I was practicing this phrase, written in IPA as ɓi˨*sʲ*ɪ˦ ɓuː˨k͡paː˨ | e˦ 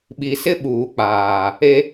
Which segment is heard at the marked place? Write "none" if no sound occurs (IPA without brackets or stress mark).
s